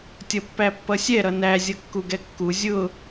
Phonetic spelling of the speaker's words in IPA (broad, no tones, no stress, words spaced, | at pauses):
tʲʌpːæpːʌsʲɛ ɾʌnæ zʲʌkːuɡɛkːu zʲʊ